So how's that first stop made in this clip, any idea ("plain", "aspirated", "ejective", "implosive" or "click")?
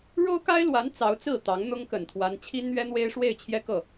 plain